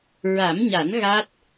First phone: ɹ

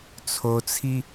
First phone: t͡sʰ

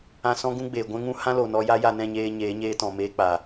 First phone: ã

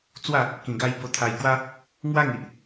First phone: t͡s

